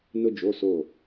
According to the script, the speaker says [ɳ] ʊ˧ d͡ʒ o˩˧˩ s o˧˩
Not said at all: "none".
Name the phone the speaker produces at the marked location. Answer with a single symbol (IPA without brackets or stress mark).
n